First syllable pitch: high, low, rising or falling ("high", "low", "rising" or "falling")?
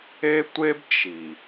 high